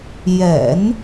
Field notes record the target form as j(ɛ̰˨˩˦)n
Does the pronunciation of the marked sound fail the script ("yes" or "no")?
no